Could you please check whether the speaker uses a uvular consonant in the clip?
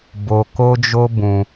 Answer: no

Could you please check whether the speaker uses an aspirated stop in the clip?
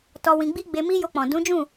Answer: no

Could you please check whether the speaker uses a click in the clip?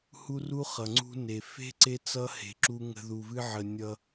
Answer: yes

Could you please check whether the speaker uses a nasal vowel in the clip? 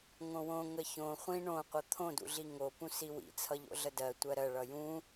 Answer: yes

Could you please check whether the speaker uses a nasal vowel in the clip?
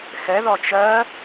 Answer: no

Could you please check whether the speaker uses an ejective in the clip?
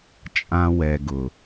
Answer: yes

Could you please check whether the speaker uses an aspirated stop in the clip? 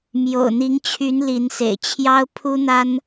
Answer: yes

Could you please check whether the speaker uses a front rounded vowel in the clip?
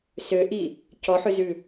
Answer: yes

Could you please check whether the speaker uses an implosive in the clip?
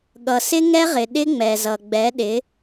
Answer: yes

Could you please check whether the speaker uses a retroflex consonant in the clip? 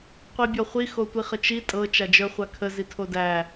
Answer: no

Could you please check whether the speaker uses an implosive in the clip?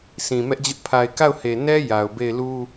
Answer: no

